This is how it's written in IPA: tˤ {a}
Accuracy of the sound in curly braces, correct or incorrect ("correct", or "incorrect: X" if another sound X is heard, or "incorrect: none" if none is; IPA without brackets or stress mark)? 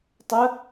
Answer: incorrect: ə